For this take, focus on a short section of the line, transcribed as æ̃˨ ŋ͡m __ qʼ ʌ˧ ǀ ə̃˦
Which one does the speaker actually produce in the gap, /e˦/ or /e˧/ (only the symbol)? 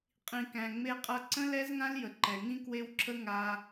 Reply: e˧